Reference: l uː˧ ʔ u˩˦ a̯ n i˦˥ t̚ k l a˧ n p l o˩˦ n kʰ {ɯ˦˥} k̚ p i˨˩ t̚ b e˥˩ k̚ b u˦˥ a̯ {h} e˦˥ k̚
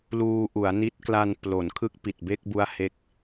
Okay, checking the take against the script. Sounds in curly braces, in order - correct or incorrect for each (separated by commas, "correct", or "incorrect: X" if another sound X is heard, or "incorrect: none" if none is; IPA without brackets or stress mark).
correct, correct